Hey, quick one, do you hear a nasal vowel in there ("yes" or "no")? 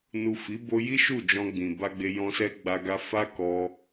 yes